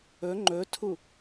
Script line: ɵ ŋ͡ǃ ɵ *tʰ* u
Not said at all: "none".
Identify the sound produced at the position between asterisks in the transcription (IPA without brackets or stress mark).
tʰ